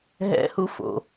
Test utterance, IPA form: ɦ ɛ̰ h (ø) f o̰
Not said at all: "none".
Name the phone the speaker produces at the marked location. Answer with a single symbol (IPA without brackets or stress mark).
u